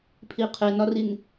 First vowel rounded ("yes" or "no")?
no